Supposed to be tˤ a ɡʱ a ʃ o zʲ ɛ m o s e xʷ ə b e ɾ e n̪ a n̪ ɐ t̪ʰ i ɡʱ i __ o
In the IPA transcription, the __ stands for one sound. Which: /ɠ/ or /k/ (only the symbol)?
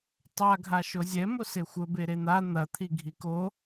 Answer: k